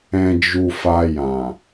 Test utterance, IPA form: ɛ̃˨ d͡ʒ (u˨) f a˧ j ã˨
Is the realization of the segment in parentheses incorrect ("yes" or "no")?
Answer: no